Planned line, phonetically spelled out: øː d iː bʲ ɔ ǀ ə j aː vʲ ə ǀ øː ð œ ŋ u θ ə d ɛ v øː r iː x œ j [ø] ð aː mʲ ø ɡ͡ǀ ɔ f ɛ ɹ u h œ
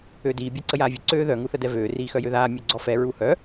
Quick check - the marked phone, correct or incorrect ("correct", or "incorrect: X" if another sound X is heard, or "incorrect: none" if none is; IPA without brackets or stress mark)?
correct